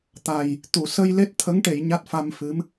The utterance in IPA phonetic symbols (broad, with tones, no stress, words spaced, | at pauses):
t̪a˨˩j | t̪u˨˩˨sə˧j le˦˥t̚t̪ʰə˧˥ŋʈe˨˩˨j ɲa˦˥t̚fa˧mfɨ˧˥m